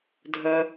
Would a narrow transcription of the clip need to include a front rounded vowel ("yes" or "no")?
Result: yes